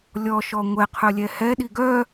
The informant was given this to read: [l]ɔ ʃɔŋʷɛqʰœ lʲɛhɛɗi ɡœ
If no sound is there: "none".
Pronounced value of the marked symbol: lʲ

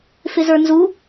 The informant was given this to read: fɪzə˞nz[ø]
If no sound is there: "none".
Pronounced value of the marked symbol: u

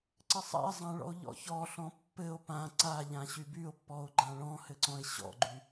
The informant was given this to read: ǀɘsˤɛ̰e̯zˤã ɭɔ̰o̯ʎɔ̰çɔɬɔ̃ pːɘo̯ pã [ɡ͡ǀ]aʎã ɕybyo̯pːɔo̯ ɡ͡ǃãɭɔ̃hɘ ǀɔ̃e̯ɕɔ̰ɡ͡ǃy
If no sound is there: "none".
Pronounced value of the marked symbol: ǀ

